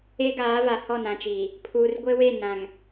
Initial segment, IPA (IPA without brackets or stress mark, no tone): e